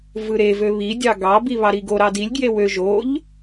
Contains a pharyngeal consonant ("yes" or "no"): no